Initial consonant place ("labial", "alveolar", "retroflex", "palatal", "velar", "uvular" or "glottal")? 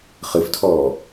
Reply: uvular